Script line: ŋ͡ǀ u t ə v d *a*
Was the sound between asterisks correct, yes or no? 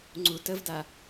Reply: yes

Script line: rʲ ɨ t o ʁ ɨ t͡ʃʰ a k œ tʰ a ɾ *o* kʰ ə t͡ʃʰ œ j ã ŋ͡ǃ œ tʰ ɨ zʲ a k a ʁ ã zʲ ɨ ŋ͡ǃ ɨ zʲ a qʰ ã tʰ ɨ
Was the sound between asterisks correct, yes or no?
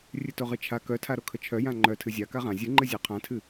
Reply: yes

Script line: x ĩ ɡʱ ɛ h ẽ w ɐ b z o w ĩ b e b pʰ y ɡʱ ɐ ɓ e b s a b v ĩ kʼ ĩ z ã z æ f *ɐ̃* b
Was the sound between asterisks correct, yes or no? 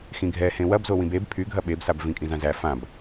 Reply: no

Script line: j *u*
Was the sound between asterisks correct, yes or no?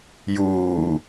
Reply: no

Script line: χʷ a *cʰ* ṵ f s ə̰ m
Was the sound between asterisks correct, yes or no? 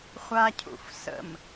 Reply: yes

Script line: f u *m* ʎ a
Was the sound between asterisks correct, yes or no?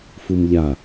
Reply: yes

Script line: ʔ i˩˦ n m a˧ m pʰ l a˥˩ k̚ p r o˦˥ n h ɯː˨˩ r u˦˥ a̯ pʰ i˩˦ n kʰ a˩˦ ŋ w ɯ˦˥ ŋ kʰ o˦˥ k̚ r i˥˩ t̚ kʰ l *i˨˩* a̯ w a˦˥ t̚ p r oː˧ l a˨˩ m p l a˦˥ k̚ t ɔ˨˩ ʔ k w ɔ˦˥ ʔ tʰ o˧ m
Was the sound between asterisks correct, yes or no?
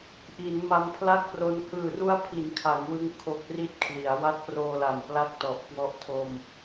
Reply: no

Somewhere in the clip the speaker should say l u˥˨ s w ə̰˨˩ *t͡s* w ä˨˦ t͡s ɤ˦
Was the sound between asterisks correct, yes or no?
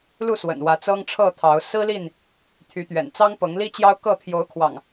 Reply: no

